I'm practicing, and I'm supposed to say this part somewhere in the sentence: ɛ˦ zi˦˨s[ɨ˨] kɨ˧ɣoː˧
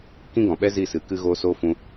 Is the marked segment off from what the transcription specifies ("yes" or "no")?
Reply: yes